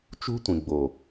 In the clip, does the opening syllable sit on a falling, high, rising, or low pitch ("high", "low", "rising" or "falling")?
high